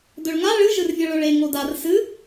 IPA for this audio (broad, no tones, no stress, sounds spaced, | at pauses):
d ɵ ɭ ŋ a ɭ ɨ ʒ ɨ r vʲ ɐ ɭ ɵ ɭ e ŋ o d a r s ɨ